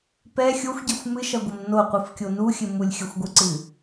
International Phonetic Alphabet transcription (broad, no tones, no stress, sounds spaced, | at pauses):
p ɛ xʲ o xʷ ɟ ɛ xʷ m ɨ ʃ ɐ ɡʷ ɘ m n o qʷ ɨ f kʲ o n u xʲ ɘ m u lʲ xʲ ɐ xʷ ɡʷ ɨ ǀ ɨ